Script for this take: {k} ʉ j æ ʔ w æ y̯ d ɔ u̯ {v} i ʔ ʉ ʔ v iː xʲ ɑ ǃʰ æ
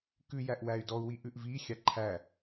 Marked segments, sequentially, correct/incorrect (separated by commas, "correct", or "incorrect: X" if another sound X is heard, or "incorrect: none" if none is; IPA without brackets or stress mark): correct, incorrect: w